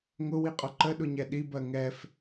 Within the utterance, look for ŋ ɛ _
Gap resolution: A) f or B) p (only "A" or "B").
A